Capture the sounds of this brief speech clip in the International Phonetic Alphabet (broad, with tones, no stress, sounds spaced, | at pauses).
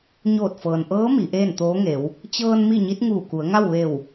ɲ oː˧˩ t̚ f ɤː˩ n ʔ ɤː˧˥ m i˩˧ ʔ eː˥˨ n t̪ oː˧˥ ŋ e˩˧ w | t͡ɕ ɤː˧ n m i˥˨ ɲ i˧˥ t̚ ŋ uː˧˩ k u˩˧ ə̯ ŋ a˥˨ w ʋ e˧˩ w